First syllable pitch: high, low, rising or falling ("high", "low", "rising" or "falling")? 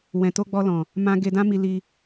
low